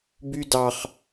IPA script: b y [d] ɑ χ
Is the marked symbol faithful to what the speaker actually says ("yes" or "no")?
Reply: yes